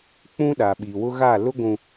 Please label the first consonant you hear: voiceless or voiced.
voiceless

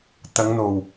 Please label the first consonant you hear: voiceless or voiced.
voiceless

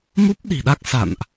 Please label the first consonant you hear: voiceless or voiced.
voiced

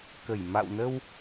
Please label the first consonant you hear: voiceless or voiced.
voiceless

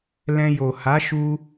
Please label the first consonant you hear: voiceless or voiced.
voiced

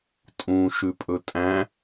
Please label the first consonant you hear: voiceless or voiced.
voiceless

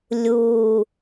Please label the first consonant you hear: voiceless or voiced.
voiced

